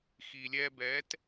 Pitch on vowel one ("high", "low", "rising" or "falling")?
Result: low